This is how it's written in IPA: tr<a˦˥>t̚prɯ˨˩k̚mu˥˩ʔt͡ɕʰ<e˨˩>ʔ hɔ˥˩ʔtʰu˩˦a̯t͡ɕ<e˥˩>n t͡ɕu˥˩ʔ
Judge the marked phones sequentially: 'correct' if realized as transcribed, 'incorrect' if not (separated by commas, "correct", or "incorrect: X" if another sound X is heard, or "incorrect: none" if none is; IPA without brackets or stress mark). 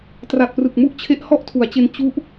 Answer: incorrect: a˨˩, incorrect: e˦˥, incorrect: e˧